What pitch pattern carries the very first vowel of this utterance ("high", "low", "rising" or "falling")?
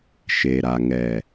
low